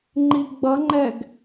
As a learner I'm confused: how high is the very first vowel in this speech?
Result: high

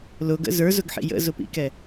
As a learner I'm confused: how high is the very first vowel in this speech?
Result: high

